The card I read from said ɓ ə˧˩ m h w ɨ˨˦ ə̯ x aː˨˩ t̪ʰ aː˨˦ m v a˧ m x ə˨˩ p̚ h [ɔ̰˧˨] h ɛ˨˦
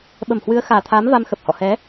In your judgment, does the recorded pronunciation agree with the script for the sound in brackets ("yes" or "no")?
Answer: yes